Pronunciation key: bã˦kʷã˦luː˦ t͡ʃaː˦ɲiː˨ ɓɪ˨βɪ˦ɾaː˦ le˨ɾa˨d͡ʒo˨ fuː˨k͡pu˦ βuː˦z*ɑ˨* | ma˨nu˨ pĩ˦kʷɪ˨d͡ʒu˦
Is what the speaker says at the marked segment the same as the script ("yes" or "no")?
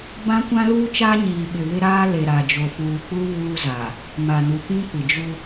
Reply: no